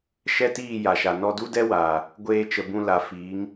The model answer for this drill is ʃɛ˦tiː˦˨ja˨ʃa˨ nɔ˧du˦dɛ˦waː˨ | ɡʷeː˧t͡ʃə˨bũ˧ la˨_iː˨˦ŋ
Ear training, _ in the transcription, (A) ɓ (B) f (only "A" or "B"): B